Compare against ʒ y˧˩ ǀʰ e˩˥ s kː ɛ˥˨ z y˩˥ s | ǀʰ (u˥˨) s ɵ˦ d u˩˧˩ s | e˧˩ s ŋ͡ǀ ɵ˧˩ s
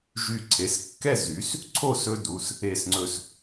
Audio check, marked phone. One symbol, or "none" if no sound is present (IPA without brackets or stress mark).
o˥˨